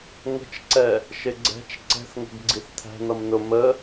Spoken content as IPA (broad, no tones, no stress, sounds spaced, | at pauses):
ŋ ə̤ t͡ʃ ǀ ɛ | ʃ ɪ ɡ͡ǀ ɛ̤ t͡ʃ ǀ ɛ̤ θ ŋ ə̤ ɡ ɡ͡ǀ i θ t̪ʰ æ̤ n ʌ m n ʊ m ə